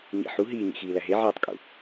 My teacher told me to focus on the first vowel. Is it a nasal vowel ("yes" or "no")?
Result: no